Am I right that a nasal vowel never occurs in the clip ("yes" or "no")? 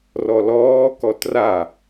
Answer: yes